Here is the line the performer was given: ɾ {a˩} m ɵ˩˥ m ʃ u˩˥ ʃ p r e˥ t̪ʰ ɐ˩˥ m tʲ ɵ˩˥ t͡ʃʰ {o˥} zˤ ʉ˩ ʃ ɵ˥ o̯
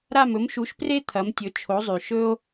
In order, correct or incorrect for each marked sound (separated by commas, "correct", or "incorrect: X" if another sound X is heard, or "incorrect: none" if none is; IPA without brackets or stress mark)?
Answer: incorrect: a˥˩, incorrect: o˩˥